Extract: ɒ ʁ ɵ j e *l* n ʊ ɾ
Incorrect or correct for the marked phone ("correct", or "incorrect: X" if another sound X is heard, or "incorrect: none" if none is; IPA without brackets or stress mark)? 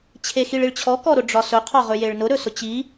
incorrect: ɭ